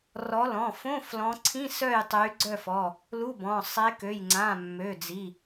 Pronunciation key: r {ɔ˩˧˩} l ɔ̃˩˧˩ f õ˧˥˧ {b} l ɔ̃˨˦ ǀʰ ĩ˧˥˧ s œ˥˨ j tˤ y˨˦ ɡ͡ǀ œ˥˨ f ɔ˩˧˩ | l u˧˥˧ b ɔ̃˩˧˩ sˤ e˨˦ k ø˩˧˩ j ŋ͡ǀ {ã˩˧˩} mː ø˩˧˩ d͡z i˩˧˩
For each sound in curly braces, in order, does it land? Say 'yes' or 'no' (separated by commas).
no, no, yes